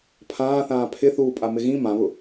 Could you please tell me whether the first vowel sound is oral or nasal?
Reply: nasal